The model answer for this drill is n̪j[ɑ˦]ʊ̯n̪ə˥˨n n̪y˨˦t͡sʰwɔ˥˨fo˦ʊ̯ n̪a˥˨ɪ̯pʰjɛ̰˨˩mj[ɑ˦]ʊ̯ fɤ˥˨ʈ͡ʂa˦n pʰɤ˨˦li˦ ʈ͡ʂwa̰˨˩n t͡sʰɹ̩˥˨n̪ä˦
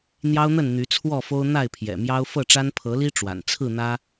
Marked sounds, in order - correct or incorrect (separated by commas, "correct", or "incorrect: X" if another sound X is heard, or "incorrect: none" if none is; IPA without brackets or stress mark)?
correct, correct